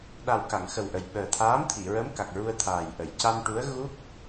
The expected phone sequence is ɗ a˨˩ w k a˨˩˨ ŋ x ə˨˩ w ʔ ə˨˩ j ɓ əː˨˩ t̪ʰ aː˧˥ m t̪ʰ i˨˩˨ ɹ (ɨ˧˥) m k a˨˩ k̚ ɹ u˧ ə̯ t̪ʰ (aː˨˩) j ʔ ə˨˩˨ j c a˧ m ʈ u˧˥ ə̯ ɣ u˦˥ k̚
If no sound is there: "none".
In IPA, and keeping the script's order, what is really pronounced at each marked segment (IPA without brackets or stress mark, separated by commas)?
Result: ə˧˥, aː˨˩